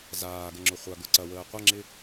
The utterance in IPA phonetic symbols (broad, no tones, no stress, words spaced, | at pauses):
zaːɡəŋ͡ǁʊ χʷaɡʊǀɐwəː qʷɐŋ͡ǁɪ